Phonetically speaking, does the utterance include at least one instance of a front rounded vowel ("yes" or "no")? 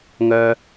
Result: yes